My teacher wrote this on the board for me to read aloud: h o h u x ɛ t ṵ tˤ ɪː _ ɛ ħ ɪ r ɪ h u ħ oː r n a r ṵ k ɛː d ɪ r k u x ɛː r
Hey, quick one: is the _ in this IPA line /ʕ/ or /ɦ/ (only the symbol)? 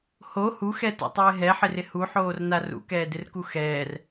ɦ